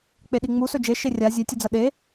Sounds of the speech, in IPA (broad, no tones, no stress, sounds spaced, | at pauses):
k͡p e ɗ i ŋ͡m u s ɵ d͡ʒ e ʃ e rʲ a zʲ e tʲ u d͡z ɐ ɗ e